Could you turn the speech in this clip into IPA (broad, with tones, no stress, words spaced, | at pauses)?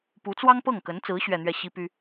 pu˧˥t͡swɑ˥ŋ pɤ˥˩ŋkə˧˥nt͡sɹ̩˧˥ ɕɥɛ˥˧n̪ɥɛ˥˩ ɕi˥py˥